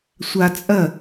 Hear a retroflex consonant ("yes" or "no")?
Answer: no